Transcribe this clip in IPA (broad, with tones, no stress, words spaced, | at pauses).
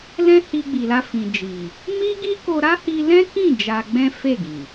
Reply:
lɛ̃˦ hi˧ɡ͡bi˨la˧ fĩ˨d͡ʒi˨ | mi˦ɡi˦ko˧ ɾa˦hi˧lɛ̃˦kĩ˦˨ d͡ʒa˧ɡ͡bɛ̃˦fe˦˨ɡĩ˨